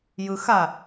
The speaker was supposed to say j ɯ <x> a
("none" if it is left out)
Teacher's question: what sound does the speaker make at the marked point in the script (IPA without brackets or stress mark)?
x